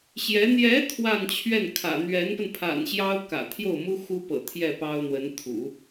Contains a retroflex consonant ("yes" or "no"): no